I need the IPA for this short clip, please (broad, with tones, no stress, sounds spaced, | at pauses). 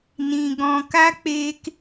n ĩ˧ ɡ ɔ̃˧ k a˦ k͡p eː˦ k